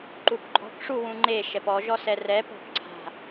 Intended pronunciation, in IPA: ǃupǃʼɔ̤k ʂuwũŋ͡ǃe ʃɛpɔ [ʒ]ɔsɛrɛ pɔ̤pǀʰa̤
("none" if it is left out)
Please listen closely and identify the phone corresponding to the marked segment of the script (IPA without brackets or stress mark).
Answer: ʒ